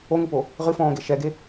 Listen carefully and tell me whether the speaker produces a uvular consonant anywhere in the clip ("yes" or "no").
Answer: yes